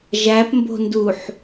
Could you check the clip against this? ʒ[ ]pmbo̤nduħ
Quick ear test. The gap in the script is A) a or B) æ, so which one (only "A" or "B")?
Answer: B